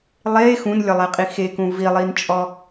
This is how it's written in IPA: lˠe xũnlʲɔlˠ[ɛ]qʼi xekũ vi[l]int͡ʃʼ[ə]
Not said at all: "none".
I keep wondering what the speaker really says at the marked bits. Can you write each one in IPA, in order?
ɛ, lˠ, ɔ

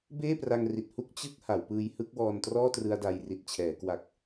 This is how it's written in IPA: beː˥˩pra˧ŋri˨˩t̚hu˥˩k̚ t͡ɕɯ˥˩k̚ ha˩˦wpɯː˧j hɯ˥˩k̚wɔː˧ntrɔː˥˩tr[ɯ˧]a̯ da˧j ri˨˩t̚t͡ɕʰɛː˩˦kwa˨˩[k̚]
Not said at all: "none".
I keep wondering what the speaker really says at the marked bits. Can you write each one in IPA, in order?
ɯ˧, k̚

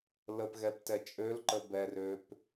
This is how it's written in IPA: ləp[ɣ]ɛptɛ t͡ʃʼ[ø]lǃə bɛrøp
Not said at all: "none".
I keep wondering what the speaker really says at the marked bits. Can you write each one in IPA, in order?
ɣ, ø

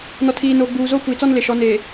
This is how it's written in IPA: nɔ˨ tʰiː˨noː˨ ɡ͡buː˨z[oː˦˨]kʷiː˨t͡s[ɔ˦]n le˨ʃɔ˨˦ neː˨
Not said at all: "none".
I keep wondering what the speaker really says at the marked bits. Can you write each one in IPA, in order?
oː˦, ɔ˦

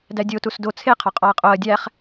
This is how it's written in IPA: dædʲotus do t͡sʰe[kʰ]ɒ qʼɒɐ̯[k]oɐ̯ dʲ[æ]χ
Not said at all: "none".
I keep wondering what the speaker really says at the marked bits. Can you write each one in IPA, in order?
qʰ, qʼ, æ

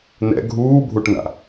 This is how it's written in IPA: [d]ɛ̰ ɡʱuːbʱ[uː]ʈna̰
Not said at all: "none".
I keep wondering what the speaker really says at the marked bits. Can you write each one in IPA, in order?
n, u

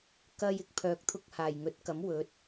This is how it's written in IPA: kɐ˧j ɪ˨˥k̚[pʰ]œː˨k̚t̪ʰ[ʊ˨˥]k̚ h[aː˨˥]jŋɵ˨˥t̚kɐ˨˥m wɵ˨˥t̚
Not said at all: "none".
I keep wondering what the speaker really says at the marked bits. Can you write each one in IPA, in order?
pʰ, ʊ˧, aː˨˩

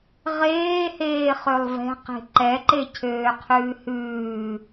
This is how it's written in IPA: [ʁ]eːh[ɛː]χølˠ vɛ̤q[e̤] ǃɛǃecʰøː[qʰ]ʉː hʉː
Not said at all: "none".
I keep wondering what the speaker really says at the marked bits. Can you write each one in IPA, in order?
ʁ, eː, e̤, qʰ

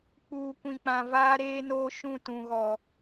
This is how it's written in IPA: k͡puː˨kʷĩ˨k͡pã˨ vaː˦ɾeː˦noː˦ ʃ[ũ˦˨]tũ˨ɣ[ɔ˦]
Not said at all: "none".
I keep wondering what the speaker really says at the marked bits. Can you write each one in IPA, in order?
ũ˦˨, ɔ˨

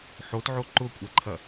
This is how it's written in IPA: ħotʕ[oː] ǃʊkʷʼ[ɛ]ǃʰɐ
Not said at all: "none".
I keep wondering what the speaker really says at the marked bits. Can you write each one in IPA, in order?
o, ɛ

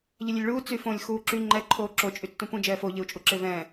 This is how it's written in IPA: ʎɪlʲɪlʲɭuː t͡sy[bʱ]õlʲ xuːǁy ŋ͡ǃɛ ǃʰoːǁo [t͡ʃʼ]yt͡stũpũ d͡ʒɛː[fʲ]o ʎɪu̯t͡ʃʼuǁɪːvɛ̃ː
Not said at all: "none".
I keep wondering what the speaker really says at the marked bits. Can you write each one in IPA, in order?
f, t͡ʃʼ, f

